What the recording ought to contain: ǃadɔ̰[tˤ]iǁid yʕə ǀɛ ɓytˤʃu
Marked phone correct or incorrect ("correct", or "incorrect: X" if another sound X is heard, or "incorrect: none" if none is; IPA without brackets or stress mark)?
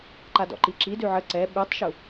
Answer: incorrect: ǃ